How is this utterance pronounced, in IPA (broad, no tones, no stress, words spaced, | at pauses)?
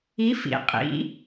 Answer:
i fḭ qʼḭ